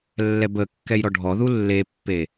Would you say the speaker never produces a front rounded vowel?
yes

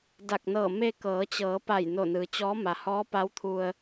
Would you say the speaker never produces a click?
yes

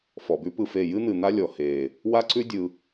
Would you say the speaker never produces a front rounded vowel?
yes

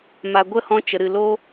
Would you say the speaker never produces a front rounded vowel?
yes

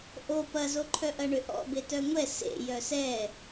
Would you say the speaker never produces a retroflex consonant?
no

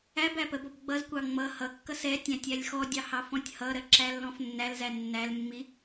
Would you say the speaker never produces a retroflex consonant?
yes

